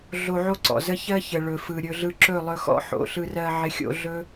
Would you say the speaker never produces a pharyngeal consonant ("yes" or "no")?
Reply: no